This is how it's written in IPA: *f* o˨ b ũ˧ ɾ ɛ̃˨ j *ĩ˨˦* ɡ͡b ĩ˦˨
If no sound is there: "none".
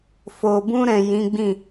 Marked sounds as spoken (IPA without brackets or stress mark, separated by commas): f, ĩ˨˦